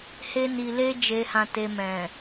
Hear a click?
no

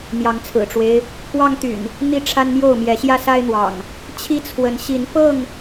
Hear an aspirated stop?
yes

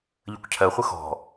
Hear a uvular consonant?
yes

